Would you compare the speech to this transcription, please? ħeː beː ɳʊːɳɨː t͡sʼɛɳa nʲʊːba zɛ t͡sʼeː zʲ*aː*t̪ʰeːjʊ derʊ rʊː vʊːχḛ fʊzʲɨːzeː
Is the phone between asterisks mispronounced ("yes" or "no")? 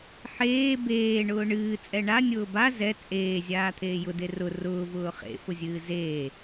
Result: no